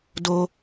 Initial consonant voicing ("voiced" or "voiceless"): voiced